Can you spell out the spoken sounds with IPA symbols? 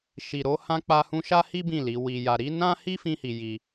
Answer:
ʃ i˨ ɾ o˧ h ã˧ k͡p a˧ h ũ˧ ʃ a˦ h i˦ b ĩ˦˨ l i˨˦ w i˧ j a˧ ɾ i˦ n ã˦ h i˦ f ĩ˦ h i˧ j i˧

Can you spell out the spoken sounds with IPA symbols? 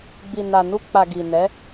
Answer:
ɡ͡b i˨ n a˨ n u˧ k͡p a˨ ɡ i˨ n ɛ˨˦

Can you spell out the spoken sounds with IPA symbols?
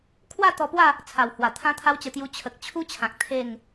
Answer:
kʰ w a˥˧ t̪ ɔ˧ p w a˥˧ | t͡sʰ a˨˩ w h w a˨˩ t̪ʰ ã˦ t̪ʰ a˦ w t͡ɕ ə˧ t̪ j u˧ t͡ɕʰ ə˨ k̚ t͡ɕʰ u˦ t͡ɕʰ ã˨ k̚ t̪ʰ e˥˧ ŋ

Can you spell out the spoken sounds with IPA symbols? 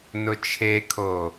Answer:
n ʊ t͡ʃʰ e kʰ o

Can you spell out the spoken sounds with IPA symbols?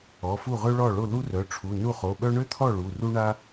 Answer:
ɔ˩˧˩ f u˥˩ ʁ ø˥ ɭ ɔ˥˩ ɭ o˥˩ l u˥ r œ˩˧˩ ʈ͡ʂʰ u˩˧˩ n u˥˩ χ o˩˧˩ ɓ œ˥ ɳ ø˥ t̪ʰ ɔ˥˩ ɭ u˩˧˩ r u˥ ɳ a˥

